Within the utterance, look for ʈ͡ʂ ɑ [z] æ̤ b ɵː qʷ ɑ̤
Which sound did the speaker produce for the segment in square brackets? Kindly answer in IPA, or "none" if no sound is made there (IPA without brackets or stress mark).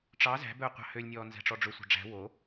z